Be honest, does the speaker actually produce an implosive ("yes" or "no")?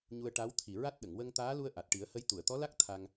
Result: yes